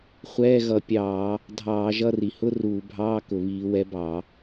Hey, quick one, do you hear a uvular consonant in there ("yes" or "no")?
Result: yes